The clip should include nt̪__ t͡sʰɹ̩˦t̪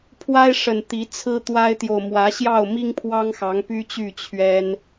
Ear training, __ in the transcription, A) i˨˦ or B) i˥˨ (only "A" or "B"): A